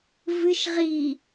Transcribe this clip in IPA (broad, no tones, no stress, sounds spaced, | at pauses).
v ɨ ʃ ʁ i